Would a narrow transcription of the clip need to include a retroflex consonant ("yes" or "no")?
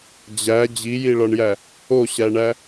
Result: yes